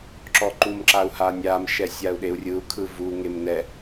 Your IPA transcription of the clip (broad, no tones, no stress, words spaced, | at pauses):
ǁɔǃumǁau̯ hanʲamʃɛ sʲau̯ɗeu̯rʲɯu̯kʰɯ vuŋem nɛ